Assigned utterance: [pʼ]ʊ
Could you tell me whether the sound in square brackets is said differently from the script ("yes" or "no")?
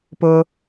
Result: yes